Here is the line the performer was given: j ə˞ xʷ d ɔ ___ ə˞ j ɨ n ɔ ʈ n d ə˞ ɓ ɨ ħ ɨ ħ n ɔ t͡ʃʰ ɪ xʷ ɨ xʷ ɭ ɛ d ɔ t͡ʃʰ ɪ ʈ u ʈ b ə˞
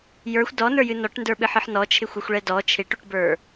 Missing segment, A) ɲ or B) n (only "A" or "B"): B